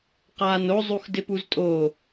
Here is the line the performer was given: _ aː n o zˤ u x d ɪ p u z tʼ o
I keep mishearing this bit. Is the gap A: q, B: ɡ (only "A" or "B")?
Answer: A